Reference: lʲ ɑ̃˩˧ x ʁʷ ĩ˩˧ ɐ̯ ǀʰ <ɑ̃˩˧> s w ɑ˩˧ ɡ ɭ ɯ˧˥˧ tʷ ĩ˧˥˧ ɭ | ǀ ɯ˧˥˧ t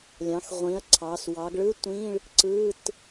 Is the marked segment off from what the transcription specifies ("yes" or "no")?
yes